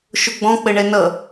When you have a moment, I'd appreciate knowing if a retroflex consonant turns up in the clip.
yes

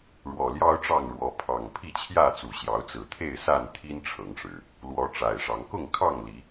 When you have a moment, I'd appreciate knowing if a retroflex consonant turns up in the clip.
yes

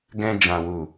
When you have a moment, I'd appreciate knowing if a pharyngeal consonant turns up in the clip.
no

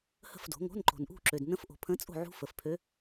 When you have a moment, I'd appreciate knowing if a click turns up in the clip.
yes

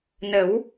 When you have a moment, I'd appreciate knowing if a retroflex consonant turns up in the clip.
no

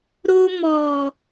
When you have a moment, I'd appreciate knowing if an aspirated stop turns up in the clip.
no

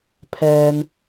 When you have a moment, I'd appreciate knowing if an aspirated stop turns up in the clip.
yes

